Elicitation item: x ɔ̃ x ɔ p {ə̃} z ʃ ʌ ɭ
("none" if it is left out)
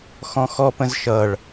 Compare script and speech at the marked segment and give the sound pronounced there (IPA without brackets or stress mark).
ə̃